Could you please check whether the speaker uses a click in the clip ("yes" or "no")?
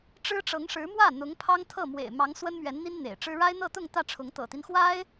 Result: no